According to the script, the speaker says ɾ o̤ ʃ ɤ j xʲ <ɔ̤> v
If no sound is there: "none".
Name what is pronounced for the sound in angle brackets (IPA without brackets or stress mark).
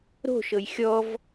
ɔ